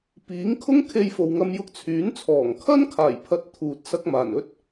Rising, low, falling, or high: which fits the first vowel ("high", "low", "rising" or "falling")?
rising